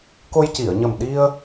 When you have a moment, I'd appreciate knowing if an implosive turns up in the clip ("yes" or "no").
yes